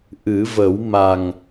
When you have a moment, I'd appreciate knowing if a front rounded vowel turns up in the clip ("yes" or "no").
no